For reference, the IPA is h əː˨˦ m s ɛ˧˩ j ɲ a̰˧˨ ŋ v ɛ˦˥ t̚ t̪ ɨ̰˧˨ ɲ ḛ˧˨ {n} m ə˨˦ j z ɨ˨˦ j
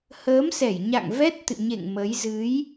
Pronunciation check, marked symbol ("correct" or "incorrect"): incorrect